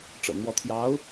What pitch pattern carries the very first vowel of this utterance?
low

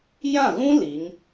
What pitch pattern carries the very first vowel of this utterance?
falling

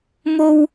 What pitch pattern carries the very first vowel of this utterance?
high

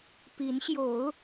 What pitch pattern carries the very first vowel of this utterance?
rising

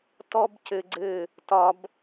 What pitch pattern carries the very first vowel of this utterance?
high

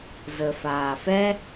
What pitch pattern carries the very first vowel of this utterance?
low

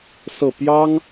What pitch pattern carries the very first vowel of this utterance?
falling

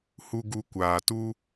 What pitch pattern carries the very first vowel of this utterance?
low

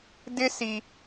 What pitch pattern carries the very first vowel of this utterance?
high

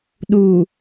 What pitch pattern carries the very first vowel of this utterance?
low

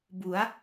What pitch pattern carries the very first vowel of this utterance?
rising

